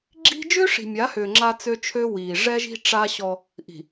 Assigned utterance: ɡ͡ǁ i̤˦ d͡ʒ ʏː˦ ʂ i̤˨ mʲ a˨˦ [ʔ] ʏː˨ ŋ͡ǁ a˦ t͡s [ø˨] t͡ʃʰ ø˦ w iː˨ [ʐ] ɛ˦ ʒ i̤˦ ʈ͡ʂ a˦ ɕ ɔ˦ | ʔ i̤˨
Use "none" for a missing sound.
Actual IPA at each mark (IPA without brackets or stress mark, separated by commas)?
h, ø˦, ʐ